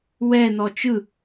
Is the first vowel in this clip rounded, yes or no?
no